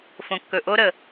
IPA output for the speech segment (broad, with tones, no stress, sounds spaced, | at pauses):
f õ˨ kː ɵ˨ ʔ o˦ ɾ ə˨